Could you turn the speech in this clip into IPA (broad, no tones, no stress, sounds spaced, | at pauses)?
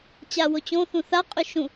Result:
t͡ɕ a w o t͡ɕ õ θ ũ θ a qʼ y ʃ ũ